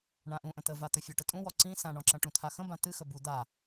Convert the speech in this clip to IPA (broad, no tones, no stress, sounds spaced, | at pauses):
ɳ ã ʔ ũ ʔ ə̃ t̪ ə v a t̪ ɵ fʲ ɔ ʈ ə tʼ ũ w ɔ ǀ ĩ s ã ɳ ɔ̃ ǁ ɐ̃ ʈ ũ t̪ʰ a x ə̃ b ã t̪ ɨ x ə b u d̪ a